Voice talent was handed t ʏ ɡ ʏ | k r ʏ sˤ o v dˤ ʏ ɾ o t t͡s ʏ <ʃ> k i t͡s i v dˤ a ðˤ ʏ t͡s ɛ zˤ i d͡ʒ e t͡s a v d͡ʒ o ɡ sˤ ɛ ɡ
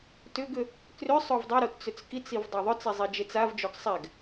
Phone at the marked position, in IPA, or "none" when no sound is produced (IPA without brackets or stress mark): t͡s